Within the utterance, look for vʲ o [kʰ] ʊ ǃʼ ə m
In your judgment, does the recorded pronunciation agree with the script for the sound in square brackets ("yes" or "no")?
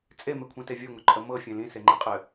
no